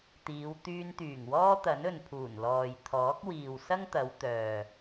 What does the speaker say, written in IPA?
t̪ iː˨˧ w t̪ yː˧ n t̪ yː˨˩ ŋ w ɔː˥ t̪ ɐ˨˥ n ɵ˨ n pʰ uː˨˩ n l ɔː˨ j t̪ʰ ɔː˨˥ k̚ w iː˨ w s ɐ˥ ŋ t̪ ɐ˨˧ w t̪ œː˨

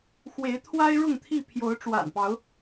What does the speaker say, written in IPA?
x w e˨˦ ɪ̯ t̪ʰ w a˦ ɪ̯ ɻ ʊ˥˨ ŋ t̪ʰ i˥˨ pʰ j o˨˦ ʊ̯ ʈ͡ʂ w a̰˨˩ n p ɑ˨˦ ʊ̯

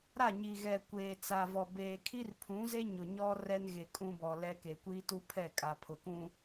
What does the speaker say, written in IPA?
ɾ a˦˨ ɲ i˨ ɣ ɛ˨ kʷ eː˨ t͡s a˨ v ɔ˨ b eː˨ kʰ i˦ r pʰ ũ˨˦ z e˦ ɲ ʊ˨ ɲ ɔ˦ r ɛ˦ n ɣ e˨ kʼ ũ˦ b ɔ˨ l ɛ˦ k e˨ kʷ iː˦ t u˦ pʰ ɛ˦˨ kʼ a˨ pʰ ʊ˨ k ũ˦

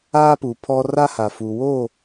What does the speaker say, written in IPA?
aː˦ p u˨ pʰ ɔ˦ r a˦ h a˨ f uː˨ w oː˦˨

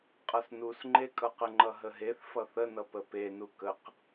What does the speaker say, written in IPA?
qʼ ʌ s n u s ŋ͡ǃ e kʼ ʌ q ə ŋ͡ǃ ʌ ɦ ə ɦ e θ f ʌ θ ə n ʌ p ə p e n u k ə q

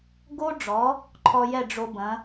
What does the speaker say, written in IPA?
ɡ o˥ ɖ͡ʐ ɔ˩˥ | ǃʰ ɔ˧ j ɛ˥˩ ɖ͡ʐ o˧ b ɐ̃˩˥

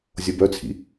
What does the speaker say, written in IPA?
zʲ o b œ t͡sʰ ḭ

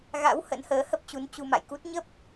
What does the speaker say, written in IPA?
ɣ a̰˧˥ w h ə̰˧˥ n h əː˨˦ h ə˦˥ p̚ t͡ɕ u˨˦ n t͡ɕ u˧ m a̰˧˨ j k u˦˥ t̚ ɲ ə˦˥ p̚

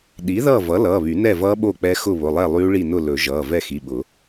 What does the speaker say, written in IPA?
ɗ i˩˥ ð ʌː˥˨ v ʌ˩˥ l ʌː˩˧˩ β y˨˩˦ n ɛ˥˨ v ʌː˦˥ ɓ o˥˨ k͡p ɛ˦˥ x ʊ˥˨ β ʊ˩˧˩ lˠ ɛ˥˨ lˠ yː˦˥ ɭ i˥˨ n ʊ˥˨ l ɵ˨˩˦ ʒ ʌː˩˧˩ v ɛ˥˨ x i˩˧˩ ɓ ʊ˨˩˦

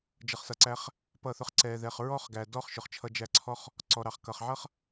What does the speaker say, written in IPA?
d͡ʒ ʌ˧ χ s ʌ˧ ǀ æ˦ χ | p ʌ˦˨ θ ʊ˦ χ ǀ ɛ˧ ð ɛ˧ χ ɹ ɔ˦ χ ɡ æ˨ d ɔ˦ χ ʃ ʊ˨ χ t͡ʃʰ ʌ˧ d͡ʒ æ˧ ǀʰ ɔ˦ χ | ǀ ɔ˨ ɾ ɑ˨ χ k ʌ˨ χ ʕ ʌ˦ χ

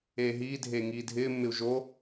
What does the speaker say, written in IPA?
eː ɦ iː dʱ eː ŋ iː dʱ ɪː mː ɪ u̯ ʒ o

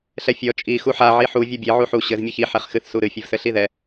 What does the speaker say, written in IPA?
ɬ ɛ fʲ ɔ t͡ʃʼ i x u ħ a ʕ i ħ u vʲ ɔ bʲ e ʕ u ħ u ɕ ɘ z mʲ ɨ ç i ħ ɛ χ x ɨ θ s u ɾ ɨ fʲ ɘ v s ɘ ɬ i ð ɛ

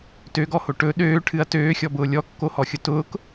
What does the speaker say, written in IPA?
t ø ɡ ɔ h o ʈ ɵ ɗ øː ʈʰ ɨ ɐ̯ t øː xʲ ɔ b ʊː lʲ ɔ kː o h ɔ xʲ ʊ t ʊː k

